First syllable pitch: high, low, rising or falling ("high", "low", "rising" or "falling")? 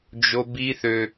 high